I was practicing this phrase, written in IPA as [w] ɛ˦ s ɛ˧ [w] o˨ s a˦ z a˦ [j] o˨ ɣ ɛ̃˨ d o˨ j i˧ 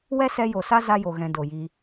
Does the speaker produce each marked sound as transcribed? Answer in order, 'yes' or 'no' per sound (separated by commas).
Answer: yes, no, yes